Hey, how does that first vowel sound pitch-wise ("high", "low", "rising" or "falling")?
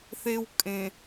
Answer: high